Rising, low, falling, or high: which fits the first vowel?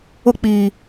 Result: falling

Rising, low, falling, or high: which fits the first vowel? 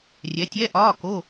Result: rising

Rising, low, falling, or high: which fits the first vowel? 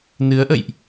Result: rising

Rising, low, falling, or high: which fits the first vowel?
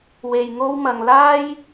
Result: low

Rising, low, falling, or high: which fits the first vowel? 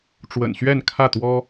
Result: low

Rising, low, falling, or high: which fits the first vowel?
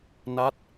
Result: falling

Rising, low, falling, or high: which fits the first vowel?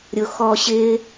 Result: low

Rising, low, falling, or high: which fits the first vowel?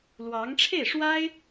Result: rising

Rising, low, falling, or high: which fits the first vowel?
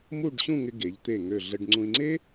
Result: falling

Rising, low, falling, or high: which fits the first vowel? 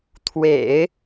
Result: low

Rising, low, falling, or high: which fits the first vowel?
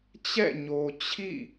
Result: falling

